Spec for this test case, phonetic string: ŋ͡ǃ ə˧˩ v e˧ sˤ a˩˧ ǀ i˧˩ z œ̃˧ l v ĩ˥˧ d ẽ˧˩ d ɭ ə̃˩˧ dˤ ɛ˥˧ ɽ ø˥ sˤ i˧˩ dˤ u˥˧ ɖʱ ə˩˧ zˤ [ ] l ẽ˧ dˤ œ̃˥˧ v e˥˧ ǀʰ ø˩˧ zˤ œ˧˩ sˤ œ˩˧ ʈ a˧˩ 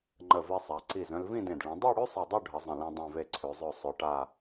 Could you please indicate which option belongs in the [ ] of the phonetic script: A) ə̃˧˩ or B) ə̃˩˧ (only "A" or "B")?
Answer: A